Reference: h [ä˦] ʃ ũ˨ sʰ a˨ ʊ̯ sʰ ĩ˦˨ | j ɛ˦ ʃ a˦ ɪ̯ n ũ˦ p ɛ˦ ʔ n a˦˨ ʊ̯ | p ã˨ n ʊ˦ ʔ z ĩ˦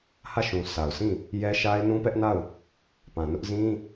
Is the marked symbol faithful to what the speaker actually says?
no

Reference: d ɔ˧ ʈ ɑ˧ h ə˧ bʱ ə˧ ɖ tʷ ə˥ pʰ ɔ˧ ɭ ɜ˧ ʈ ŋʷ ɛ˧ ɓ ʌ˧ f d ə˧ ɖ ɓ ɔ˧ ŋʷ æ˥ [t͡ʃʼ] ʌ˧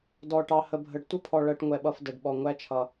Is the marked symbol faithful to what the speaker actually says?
no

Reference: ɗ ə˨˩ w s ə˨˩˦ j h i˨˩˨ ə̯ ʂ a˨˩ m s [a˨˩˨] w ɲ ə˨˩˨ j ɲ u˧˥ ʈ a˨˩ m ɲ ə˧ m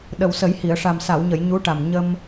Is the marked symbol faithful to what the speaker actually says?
yes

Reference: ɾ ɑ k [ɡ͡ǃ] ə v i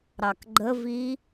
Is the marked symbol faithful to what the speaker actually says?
yes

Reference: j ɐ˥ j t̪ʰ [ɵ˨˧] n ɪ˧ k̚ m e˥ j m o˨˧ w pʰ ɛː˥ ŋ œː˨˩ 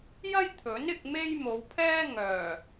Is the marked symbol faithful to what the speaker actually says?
no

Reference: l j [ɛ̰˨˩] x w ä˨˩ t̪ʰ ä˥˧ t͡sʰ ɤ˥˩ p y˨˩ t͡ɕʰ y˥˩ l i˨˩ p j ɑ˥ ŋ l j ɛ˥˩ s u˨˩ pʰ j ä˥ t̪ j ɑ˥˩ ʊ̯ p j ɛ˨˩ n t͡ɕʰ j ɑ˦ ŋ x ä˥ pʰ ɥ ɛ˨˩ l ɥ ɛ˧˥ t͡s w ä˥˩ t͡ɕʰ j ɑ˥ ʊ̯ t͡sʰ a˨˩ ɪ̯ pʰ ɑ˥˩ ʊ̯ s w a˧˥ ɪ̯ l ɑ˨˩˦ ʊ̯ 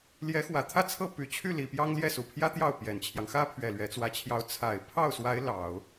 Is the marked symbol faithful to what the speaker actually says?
no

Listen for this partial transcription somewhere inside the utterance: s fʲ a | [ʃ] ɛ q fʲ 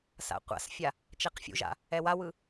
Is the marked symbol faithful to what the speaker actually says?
no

